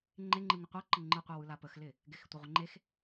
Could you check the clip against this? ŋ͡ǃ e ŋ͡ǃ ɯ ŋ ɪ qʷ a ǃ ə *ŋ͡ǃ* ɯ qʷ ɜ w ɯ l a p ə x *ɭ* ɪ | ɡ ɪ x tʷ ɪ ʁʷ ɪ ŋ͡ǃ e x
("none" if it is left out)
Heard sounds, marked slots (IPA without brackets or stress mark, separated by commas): ŋ͡ǃ, l